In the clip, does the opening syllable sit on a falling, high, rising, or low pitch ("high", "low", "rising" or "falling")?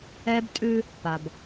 high